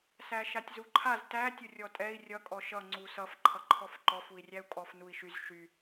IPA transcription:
s æ ʃ a tʲ z u ǃʰ a z t æ tʲ ʊ rʲ ɔ tʼ ɛ i̯ rʲ ʌ kʼ ɔ ʃ ʌ ŋ͡ǀ u s ʌ f ǃʰ ʌ ǃʰ ɔ f ǃ ɔ f u i̯ rʲ æ u̯ kʼ ɔ f n u i̯ ʃ y z ʃ y

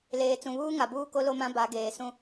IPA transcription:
l eː˨ t͡s ũ˨ β uː˦ ŋ a˨ b uː˦ k o˦ l o˦ m ã˦ b a˨˦ ɡ eː˨ s ũ˦

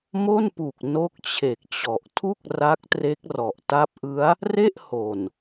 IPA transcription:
m o˥˩ n p u˨˩ k̚ n o˦˥ k̚ t͡ɕʰ e˨˩ k̚ t͡ɕ ɔ˨˩ ʔ tʰ u˥˩ k̚ r a˦˥ k̚ t r e˦˥ k̚ r ɔ˨˩ ʔ t a˦˥ p̚ ʔ ɯ˦˥ a̯ | r e˥˩ ʔ h o˨˩ n

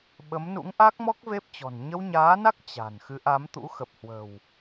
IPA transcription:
ɓ ə˨˦ m n ṵ˧˥ ŋ ʔ a˦˥ k̚ m ɔ˦˥ k̚ v e˦˥ p̚ t͡ɕ ɔ̤˨˩ n ɲ ə˧ w ɲ aː˨˦ n a˦˥ k̚ t͡ɕ a̤˨˩ n x ɨ˨˦ ʔ a˨˦ m t̪ ṵ˧˥ x ə˨˩ p̚ h w ə̤˨˩ w

